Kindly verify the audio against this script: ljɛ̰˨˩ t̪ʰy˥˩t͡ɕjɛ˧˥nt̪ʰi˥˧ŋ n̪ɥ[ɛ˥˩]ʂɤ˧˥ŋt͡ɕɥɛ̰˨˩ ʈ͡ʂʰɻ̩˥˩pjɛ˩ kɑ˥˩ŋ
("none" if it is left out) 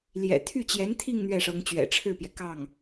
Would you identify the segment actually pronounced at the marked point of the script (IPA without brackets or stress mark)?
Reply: ɛ˥˩